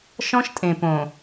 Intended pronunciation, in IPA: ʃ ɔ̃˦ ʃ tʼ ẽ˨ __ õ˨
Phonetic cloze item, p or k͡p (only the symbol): p